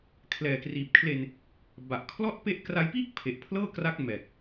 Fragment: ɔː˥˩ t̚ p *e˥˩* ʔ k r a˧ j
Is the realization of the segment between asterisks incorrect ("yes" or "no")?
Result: no